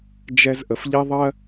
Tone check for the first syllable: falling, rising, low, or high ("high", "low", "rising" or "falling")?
high